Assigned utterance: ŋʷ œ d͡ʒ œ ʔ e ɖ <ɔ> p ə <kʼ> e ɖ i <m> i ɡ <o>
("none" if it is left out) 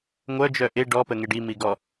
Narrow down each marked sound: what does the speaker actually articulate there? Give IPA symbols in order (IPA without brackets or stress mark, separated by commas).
ɔ, ŋ, m, ɔ